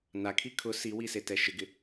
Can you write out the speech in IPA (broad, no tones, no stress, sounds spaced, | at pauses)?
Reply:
n a kʰ i kʰ ʊ s i w i s e t ɛ ʃ ɪ ɡ ɪ